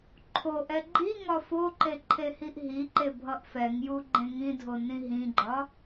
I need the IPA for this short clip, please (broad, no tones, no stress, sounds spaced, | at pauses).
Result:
ǃʰ o ʔ ɛ ɡ͡ǃ i ŋ ɒ f o ǃ e ǃʰ e h i ʔ ɦ i ǃ e bʱ ʌ ʔ f ɛ ŋ j u ɡ͡ǃ ẽ ŋ ĩ dʱ o n ĩ ɦ ĩ ɡ͡ǃ ɒ